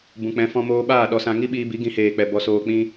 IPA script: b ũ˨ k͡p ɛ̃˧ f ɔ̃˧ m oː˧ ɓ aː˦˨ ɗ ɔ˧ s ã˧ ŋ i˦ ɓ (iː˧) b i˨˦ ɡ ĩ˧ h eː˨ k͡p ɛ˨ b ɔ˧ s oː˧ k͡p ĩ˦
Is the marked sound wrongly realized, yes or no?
no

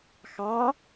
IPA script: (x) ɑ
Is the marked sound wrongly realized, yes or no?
no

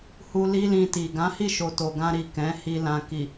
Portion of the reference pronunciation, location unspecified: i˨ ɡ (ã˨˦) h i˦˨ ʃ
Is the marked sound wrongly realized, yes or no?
no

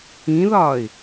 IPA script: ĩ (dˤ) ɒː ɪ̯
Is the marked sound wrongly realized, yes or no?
yes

